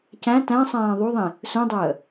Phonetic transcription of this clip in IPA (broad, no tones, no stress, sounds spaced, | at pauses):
c æ̃ t æ̃ sˤ æ̃ː ðˤ u ðˤ ĩ | s ũ dˤ əː